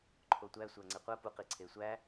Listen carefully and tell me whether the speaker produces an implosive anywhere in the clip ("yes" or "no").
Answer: no